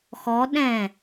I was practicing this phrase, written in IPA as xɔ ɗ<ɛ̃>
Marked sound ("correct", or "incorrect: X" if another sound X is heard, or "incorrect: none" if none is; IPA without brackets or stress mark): correct